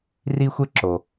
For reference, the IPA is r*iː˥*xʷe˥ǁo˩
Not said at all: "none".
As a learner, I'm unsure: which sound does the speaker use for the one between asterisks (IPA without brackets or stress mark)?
i˥